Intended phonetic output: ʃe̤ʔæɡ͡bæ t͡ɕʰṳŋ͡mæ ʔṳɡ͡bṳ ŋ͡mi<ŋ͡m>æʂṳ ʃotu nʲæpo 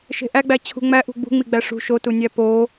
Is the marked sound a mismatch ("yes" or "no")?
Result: yes